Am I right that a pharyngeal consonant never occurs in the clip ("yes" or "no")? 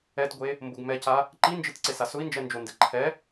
yes